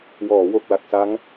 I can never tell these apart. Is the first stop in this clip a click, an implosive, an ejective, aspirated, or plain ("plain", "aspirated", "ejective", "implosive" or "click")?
plain